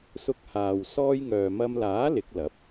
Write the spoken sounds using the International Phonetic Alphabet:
sʊ˧k̚ haː˨w sɔː˥jŋœː˨ mɐ˧mlaː˨˥ lɪ˨˥k̚lɐ˨˥p̚

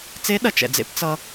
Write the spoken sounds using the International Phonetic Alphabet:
t͡se˧˥ɗɐ˩˧t͡ʃ ɛ̰˩d͡zḛ˥p t͡sʌ˧

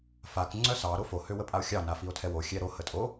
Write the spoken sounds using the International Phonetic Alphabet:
fak ŋ͡ǀœsɑ ɾofo høwəpʼao̯xʲɑ nafio̯tʰɛwo xʲɛɾo hətʼo

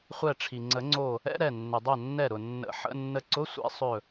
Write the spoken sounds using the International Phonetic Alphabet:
χʷɛ˧˩ʈ͡ʂʰi˩ŋ͡ǀə˨˩˦ŋ͡ǀo˧˩ | ɛ̰˧˥˧ɾɛ˧˩ nːʏ˩dˤœ˧˩ nːɛ˧˩ɾʊ˩ nːə̰˨˩˦ħə̰˧˥˧ nːə˧ǀʊ˧˥˧ sʷɛ̰˦˥sˤɵ˧˩

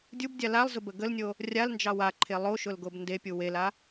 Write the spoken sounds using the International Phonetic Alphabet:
dʲubdʲa lalˠzʊbə ɡəlnʲo | rʲalnd͡ʒɑ waǃʰe lˠoʃʊlɡob ndepʲu wela

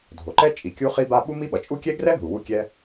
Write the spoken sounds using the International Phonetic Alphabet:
dʱo˩ǃɛ˥t͡ʃʼi˩ kʲu˥χi˥ba˥ ɓu˥ mi˥ɓʌ˩t͡ʃʼu˥ kʲɛ˥ɡrɛ˥ɦu˩ wu˥kʲɛ˥

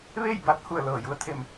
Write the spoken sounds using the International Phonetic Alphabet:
ʋe˥˨jba˧˥t̚ hu˧˩ə̯ lɤː˧˩ju˧˥ə̯t̪ʰe˧˩m

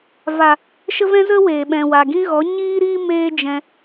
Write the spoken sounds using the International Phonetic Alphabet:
va˨ | ʃə˦vɛ̃˦ zə˦ weː˨ɓɛ̃˨wa˨ ɡĩ˦ɣɔ˨˦ ɲiː˦ɾiː˦ meː˦d͡ʒɛ̃˧

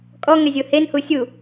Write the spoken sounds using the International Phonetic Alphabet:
kʼɔŋɛzʲo hen husʲu

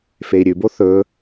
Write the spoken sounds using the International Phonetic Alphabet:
fei̯ɾʲʉbo θɵ

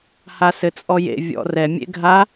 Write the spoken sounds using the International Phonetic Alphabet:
hasɘt͡sʼɔjḛ vʲɔ̰rɛ mʲḛɡʱa

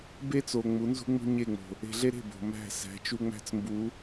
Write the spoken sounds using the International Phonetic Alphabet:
be˦t͡so˨ ŋ͡mu˨˦nzṳ˦ŋ͡mṳ˦ ɲe˦˨ŋ͡mo̤˨ | e̤˧ɮe˦ɾe̤˦˨ bo̤˨mæ̤˦˨sæ̤˨˦ t͡ʃu˦ŋ͡mæ̤˦t͡smbu˨˦

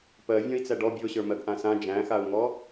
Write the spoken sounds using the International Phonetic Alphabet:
pɜvʲɔ̃i̯t͡sæ ɖɔ bʲoɕə˞mɜɡ ʔãsã d͡ʒæ̃xau̯ŋɔ

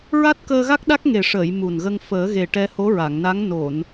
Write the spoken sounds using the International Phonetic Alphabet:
ɹa˦˥t̚kəː˧ɣa˦˥k̚ɗa˦˥k̚ ŋe˨˩ʂəː˨˩˨j mu˨˩nɣə˧ŋ fəː˨˩˦ɣe˨˩ ʈɛ˧ho˧˥ɹa˨˩˨ŋna˧˥ŋ no˨˩˨n

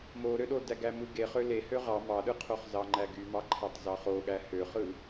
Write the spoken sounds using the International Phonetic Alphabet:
moɾøɗo dæɡæmɯɡe χøle høʁɑ mɑɗɯqʰoχ zɑŋ͡ǃæɡymɑ ǃʰætˤzɑχoɠæ høχɯ

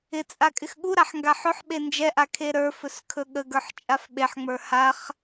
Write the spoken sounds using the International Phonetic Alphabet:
ɪt͡sʼa kʼɪxɠuɾaħ ŋɡaħɵħɓe nd͡ʒɛʔa kʰeɾə˞fɵs kʰɵɠəɡə˞ħ t͡ʃʼafɓeħŋ͡mə˞ haχ

